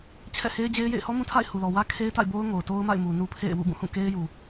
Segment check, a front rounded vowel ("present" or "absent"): absent